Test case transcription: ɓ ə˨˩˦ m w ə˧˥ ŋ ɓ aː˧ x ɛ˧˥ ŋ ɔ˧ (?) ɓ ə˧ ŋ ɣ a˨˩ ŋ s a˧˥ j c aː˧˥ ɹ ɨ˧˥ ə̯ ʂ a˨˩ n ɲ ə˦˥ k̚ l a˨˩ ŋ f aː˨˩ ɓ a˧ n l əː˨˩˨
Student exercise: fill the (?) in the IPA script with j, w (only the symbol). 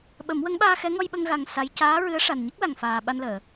j